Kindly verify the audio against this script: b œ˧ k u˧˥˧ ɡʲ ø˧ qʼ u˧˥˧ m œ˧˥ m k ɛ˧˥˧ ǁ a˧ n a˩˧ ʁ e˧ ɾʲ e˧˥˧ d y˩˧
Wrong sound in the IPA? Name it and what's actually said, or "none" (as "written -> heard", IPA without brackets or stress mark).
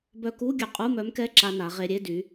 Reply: none